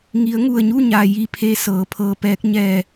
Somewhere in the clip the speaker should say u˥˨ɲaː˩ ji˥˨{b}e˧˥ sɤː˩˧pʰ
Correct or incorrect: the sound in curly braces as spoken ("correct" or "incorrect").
incorrect